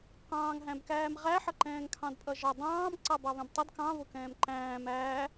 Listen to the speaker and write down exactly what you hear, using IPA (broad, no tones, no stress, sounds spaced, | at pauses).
q ɑ̃ː ŋ ɦ æ̃ b k æː m ʁ æ ħ ʌ ǃ ɛ̃ː ŋ kʰ ɑ̃ d pʼ ʌ ʒ ʌ dˤ ɑ̃ː m ǀ ɑ b ɑ β ɛ̃ b tˤ ə d k ɑ̃ β ʊ k ɛ̃ː m ǃ æ̃ː m æː